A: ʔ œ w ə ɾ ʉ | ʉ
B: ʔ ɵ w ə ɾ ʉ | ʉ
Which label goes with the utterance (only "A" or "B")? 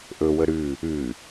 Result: B